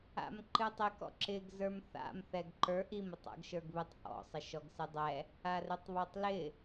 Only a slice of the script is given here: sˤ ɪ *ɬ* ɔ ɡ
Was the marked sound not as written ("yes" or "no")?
yes